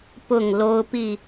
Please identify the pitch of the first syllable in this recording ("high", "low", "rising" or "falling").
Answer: falling